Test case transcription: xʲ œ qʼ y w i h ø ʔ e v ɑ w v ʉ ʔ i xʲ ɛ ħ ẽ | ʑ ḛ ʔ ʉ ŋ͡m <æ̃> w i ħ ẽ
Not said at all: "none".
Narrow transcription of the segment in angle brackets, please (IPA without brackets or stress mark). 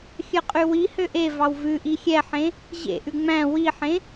æ̃